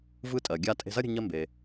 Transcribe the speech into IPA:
vɯ˧tʼɜ˩ ɡʲa˧tʼe̤˧zɐ˥ɾʲə̤˧ ɲɜ˧ mbe˩

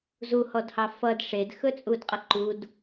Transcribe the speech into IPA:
zuhɔdhɑ fʌd ʂedxɵt͡sʼudqʼʌ ǃud

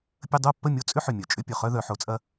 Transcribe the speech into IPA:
pʲə˦ dˤo˥˨pːə˥˨ mʲo˦t͡sʼʏ˦ħʏ˨˩ mʲœ˨˩t͡ʃʼʏ˦ pʲœ˨˩χœ˦ðœ˩˧ħo˩˧ t͡sʼɐ˦

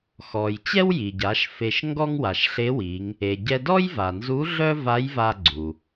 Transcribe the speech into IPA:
xɔ˩j t͡ɕɛ˥wji˩ɟa˩˧ʃ fe˧ʃ ŋɡɔ˥ŋwa˩ʃɬe˧˥wi˩˧ŋ | e˩ ɟɛ˧dɔ˥jva˩nzu˧˥ ɮœ˥ va˧˥jva˧ ɡ͡ǀu˩

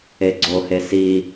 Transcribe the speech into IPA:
eɡ͡ǀohe si

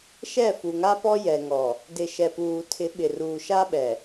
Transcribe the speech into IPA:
ʃɛ˦˨fu˨ŋa˦pɔ˦ jɛ˨ŋɔ˨ | dɪ˨ ʃɛ˨puː˨tʰɪ˨˦ ɓɪ˨ruː˨ ʃa˦ɓɛ˨

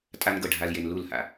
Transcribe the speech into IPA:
tʼa˦nɡɤ˧ ɖʱa˧lje˧n lu˦˨lha̰˧

